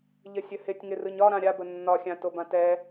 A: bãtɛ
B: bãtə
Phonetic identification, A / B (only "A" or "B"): A